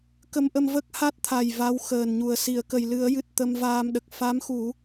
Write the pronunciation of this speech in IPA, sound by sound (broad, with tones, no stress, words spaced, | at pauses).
kə˧mʔə˧mvə˦˥k̚ ha˦˥t̚t̪ʰa˨˩j va˧˥w xəː˨˩nɲu˨˩ə̯ si˨˩˨ə̯kə˨˩jlɨ˨˩˦ə̯jɨ˨˩t̚ t̪ə˧mvaː˧mɗə˨˩k̚ fa˧˥mxu˨˩˦